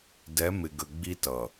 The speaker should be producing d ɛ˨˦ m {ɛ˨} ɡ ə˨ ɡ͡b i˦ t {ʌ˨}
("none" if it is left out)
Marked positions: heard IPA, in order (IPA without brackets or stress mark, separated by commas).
ɪ˨, ʌ˨